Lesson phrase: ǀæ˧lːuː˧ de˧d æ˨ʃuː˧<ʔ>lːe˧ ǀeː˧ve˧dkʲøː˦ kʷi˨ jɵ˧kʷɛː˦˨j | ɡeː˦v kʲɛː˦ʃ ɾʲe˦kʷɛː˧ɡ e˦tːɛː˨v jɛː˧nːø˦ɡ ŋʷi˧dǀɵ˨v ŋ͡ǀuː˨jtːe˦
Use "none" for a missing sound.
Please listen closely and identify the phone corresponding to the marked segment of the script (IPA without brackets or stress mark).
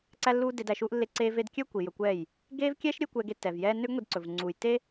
ʔ